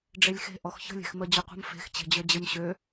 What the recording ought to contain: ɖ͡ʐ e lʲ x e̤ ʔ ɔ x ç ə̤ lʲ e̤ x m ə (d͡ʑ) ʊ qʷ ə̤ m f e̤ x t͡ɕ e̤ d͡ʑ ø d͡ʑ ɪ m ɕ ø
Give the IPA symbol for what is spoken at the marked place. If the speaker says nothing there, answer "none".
d͡ʑ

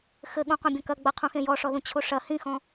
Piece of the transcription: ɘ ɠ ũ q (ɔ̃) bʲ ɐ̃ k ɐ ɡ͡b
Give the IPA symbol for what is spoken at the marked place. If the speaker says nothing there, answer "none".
ɔ̃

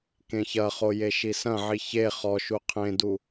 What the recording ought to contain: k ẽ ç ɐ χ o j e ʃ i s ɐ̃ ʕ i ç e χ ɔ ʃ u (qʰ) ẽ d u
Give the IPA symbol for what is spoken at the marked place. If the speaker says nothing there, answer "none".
qʰ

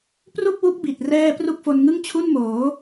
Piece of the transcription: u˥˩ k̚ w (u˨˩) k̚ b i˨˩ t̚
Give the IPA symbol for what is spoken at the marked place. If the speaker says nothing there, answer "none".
u˦˥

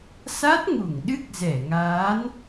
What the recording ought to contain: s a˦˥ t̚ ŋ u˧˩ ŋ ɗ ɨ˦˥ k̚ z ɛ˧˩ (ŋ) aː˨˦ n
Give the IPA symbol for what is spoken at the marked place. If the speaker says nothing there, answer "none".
ŋ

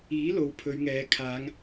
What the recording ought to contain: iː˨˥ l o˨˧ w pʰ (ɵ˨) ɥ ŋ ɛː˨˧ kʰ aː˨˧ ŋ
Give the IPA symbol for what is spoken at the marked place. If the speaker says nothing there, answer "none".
ɵ˨˧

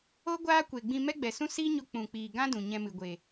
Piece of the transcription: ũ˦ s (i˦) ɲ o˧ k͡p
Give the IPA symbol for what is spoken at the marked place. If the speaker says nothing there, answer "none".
i˦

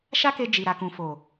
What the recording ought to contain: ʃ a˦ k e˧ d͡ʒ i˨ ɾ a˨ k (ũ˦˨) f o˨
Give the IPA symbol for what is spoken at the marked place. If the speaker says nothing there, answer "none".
ũ˨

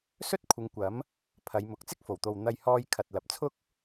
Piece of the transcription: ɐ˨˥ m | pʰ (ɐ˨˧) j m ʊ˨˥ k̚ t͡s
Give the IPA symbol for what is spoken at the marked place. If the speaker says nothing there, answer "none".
ɐ˨˧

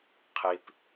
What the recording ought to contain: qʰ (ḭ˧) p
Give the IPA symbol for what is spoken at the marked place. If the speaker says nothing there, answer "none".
i˧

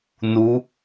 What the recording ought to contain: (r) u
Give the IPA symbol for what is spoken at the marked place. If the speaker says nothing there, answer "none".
n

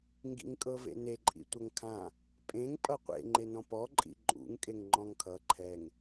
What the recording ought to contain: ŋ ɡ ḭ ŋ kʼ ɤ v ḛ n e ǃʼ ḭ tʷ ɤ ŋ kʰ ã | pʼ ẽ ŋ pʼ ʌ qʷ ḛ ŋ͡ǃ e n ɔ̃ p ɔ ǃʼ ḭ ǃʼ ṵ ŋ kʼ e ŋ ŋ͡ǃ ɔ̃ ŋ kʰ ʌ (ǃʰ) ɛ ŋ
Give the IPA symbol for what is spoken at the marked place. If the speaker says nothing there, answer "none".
ǃʰ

